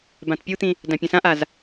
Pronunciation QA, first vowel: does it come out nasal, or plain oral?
nasal